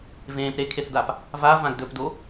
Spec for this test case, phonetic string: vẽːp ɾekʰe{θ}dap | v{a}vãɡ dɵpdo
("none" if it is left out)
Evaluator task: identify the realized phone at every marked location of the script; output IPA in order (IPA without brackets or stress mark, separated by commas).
θ, a